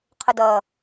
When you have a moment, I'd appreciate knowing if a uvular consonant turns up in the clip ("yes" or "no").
yes